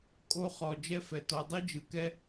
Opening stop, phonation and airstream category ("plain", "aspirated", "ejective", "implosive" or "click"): ejective